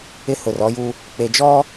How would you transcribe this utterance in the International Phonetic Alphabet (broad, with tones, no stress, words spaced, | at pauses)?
ɪ˦hʊ˨rɔ˦ju˦ | k͡pe˨d͡ʒɔ˦